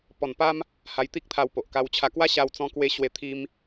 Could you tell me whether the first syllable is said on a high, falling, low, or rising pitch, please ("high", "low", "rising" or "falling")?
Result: low